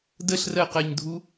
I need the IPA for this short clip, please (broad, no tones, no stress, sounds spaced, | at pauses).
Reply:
d ə ɬ r ɜ q ɜ ɲ dʱ u